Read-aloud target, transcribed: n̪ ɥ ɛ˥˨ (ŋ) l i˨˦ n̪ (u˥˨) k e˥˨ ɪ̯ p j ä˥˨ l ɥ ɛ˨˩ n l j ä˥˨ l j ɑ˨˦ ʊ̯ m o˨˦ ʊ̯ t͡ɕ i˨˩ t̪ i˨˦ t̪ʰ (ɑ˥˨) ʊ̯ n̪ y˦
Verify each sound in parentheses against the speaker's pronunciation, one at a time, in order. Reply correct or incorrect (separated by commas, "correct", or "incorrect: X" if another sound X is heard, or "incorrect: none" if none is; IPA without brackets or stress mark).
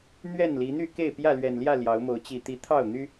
incorrect: n, incorrect: y˥˨, correct